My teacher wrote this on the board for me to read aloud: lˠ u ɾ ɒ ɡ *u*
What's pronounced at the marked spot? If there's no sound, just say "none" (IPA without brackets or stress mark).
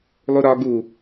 u